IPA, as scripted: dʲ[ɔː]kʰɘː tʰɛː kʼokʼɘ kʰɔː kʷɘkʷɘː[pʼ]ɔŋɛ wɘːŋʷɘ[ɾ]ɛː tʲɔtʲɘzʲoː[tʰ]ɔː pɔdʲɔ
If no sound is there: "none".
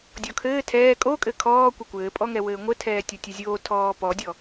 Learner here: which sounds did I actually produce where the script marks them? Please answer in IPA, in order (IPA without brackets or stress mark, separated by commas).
ɔ, pʼ, tʰ, tʰ